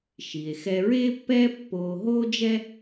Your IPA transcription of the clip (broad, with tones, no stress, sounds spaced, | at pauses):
ʃ i˩ e̯ x ɛ˧ ɹ eː˥ pː ɛː˥ pː oː˧ ɦ oː˥ d͡ʒ ɛ˥